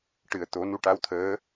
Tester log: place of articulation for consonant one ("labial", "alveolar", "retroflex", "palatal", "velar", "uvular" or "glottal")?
retroflex